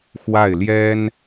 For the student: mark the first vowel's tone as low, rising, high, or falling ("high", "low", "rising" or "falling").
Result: falling